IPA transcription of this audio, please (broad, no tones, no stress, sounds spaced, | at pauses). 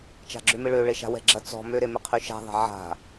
t͡ʃ a̤ ɡ͡ǁ ø m ɪ ɭ ø ɭ e ʃ a̤ w ɛ̤ ɡ͡ǁ ɐ t͡s ɔ̤ m ø ɾ e m ɪ qʰ y ʃ a̤ ðˤ ɛ̤ ʕ a̤